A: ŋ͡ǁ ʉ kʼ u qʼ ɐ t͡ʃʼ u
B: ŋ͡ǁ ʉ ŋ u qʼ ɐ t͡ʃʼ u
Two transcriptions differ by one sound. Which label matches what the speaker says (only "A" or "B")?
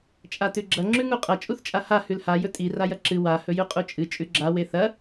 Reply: B